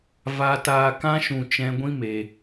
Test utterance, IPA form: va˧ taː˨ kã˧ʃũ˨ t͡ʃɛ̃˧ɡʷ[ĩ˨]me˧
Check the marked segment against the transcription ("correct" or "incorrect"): incorrect